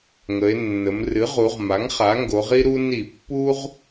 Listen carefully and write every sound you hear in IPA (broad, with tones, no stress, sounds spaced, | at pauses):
ŋ ə˩˧ e̯ nː ə˩˧ m r ɨ˩˥ ʁ u˩˧ ʁ m a˩˥ ŋ χ a˩˥ ŋ ɡ o˩˧ ʁ i˦ ɾ u˦ n i˧˩˧ pː u˦ ʁ